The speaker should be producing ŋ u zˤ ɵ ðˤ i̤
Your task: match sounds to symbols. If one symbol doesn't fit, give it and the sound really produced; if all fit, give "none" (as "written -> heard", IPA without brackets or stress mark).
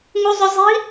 ðˤ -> zˤ